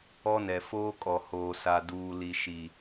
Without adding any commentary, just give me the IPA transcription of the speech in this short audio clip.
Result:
ɔ˦ n ɛ˨ f oː˦ kʼ ɔ˨ h oː˨ s a˨ d uː˨ l i˨ ʃ i˨

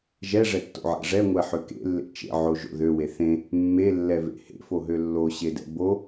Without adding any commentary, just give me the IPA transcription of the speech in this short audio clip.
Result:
ʒ ɛ ʐ ɛ tː o̰ ʕ ɛ̰ ʐ ɛ ŋʷ ɛ ħ ø k ḛ lː ḛ t͡ʃ ḛ ʕ o ʒ o̰ ð ø w e θ ẽ | mː e lː ɛ v ḛ h ḛ f o ɦ ø lː o ɕ e d ɛ̰ b o

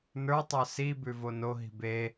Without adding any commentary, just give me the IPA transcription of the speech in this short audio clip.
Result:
n ə˞ tˤ ə˞ s i b ʉ v o n o ɦ i̤ b e

